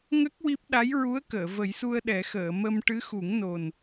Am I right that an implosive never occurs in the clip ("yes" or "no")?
no